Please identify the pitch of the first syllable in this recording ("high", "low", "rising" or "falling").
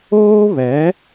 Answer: high